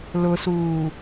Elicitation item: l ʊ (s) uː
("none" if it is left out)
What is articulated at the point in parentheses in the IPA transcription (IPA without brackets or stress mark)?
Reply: s